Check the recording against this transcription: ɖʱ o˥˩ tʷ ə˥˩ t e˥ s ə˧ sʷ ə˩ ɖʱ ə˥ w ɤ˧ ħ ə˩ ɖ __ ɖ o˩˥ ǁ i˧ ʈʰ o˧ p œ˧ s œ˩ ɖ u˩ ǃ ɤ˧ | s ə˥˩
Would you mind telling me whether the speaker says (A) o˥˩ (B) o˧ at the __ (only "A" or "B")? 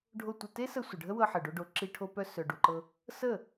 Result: B